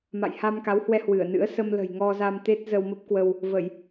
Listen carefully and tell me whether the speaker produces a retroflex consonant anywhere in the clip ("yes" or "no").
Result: no